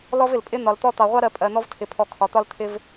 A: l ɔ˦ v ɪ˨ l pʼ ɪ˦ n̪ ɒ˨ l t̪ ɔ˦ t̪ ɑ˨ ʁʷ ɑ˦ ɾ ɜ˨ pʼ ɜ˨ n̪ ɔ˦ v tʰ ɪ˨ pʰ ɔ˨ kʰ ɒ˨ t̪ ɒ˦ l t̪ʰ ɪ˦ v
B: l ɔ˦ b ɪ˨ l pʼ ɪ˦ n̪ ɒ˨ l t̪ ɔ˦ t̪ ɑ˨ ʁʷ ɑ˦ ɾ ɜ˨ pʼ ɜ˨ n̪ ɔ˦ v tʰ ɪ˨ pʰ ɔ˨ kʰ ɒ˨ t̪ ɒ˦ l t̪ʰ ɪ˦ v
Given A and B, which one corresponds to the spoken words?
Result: A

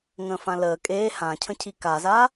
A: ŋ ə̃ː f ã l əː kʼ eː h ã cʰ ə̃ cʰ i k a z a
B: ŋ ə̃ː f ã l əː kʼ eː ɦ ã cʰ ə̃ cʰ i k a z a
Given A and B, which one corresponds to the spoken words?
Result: A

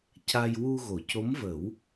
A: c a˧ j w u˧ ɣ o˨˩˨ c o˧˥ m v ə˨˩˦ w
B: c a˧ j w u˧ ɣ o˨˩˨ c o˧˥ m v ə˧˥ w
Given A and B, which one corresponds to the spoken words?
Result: A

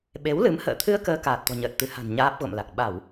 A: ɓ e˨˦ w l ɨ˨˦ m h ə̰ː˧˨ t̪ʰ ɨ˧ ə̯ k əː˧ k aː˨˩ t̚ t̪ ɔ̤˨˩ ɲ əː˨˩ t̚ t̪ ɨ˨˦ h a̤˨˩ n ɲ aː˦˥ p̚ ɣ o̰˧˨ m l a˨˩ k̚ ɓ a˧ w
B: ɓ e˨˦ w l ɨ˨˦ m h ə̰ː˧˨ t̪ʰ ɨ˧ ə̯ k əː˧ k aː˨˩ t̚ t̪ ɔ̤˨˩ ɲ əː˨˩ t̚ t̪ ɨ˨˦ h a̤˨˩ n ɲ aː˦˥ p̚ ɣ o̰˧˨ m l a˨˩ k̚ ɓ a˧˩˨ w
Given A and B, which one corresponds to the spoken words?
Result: B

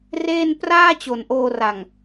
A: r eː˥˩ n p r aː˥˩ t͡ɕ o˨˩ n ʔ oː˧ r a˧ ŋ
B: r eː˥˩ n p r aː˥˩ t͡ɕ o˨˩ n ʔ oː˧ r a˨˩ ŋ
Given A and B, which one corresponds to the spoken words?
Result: B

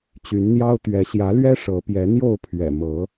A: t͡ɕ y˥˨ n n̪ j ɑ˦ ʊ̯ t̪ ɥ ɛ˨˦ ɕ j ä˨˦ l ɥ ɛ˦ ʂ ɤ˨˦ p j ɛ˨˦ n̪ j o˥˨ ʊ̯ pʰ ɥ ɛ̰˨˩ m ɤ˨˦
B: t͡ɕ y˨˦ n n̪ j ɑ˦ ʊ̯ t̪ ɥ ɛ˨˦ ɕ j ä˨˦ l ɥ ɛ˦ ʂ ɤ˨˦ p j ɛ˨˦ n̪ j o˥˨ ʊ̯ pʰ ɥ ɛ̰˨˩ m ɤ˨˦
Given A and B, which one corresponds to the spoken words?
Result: B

